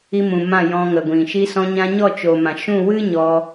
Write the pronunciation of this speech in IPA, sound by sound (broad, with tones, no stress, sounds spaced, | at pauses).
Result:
i˧ m ũ˨ m ã˦˨ j ɔ̃˧ ŋ ə˨ ɡʷ ĩ˨ ʃ i˧ s ɔ̃˧ ɲ ã˧ ɲ ɔ˦˨ t͡ʃ o˨ m ã˨ ʃ ũ˦˨ w ɨ˦ ɲ ɔ˧